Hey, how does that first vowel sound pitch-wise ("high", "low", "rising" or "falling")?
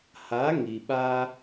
rising